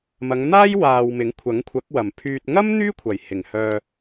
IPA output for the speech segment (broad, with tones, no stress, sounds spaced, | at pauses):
m ɐ˨˧ ŋ n̪ aː˥ j w aː˨ w m ɪ˨˥ ŋ kʷʰ ɐ˨˥ ŋ kʷʰ ɐ˨˥ k̚ w ɐ˨˩ m pʰ yː˧ t̚ ŋ ɐ˥ m n̪ yː˥ kʷʰ ɐ˨˩ j h ɪ˨˩ ŋ h œː˨